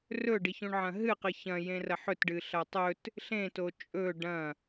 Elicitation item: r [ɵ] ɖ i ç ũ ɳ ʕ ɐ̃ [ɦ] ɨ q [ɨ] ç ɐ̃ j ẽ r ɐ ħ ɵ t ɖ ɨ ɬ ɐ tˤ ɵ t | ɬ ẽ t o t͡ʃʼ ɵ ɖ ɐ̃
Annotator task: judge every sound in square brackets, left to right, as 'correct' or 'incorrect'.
correct, correct, correct

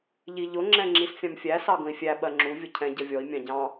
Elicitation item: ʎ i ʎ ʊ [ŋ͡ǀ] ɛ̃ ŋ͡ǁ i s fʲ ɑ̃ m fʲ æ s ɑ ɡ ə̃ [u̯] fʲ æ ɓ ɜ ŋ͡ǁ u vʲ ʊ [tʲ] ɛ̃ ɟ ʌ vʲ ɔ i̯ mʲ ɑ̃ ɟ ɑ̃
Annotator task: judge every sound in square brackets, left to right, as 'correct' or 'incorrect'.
incorrect, incorrect, incorrect

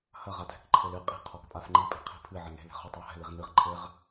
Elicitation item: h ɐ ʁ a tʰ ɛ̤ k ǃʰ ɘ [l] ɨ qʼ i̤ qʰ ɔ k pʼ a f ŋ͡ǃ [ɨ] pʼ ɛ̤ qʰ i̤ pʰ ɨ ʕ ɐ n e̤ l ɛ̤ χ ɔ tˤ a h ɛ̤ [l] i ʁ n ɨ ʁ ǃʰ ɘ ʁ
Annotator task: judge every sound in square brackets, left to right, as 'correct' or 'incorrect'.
correct, incorrect, correct

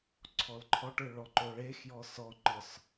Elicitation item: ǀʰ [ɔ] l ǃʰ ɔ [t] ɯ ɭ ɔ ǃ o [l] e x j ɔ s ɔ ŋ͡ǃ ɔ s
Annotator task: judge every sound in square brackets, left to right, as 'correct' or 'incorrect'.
correct, incorrect, incorrect

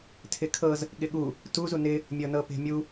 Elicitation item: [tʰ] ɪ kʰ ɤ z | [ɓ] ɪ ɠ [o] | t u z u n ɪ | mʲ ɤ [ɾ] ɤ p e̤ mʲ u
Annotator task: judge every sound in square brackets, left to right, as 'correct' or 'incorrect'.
correct, incorrect, incorrect, incorrect

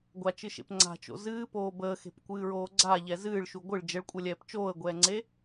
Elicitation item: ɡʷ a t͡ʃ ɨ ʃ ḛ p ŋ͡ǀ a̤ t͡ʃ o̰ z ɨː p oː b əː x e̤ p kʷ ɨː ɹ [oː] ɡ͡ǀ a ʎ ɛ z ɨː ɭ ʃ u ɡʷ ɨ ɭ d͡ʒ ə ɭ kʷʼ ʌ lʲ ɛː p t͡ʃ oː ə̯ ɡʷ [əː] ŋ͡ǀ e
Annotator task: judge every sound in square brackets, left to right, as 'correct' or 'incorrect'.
correct, incorrect

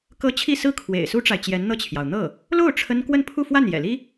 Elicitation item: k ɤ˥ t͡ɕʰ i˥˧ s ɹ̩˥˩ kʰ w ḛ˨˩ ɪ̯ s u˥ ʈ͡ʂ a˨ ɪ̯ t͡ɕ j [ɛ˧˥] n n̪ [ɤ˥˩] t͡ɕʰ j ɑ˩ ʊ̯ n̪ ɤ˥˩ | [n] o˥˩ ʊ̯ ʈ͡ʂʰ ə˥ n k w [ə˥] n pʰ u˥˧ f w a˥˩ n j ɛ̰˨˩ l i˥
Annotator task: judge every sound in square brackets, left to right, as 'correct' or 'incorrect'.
correct, correct, incorrect, incorrect

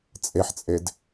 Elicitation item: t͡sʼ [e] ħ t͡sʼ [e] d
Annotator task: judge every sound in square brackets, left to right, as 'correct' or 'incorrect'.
correct, correct

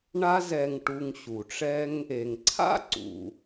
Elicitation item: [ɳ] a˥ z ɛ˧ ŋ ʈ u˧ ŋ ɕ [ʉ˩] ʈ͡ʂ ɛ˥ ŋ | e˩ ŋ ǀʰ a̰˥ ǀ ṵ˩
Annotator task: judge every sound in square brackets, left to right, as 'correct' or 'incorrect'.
correct, incorrect

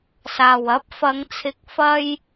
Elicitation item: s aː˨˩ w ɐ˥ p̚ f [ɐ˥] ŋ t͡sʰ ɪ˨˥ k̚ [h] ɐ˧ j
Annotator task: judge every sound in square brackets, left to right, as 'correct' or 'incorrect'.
incorrect, incorrect

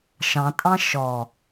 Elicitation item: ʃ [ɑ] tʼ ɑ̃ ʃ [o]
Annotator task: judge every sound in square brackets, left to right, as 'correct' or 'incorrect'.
incorrect, incorrect

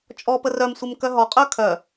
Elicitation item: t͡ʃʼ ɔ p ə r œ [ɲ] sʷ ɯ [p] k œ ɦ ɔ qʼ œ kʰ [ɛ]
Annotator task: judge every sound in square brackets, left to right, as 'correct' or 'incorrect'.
incorrect, incorrect, incorrect

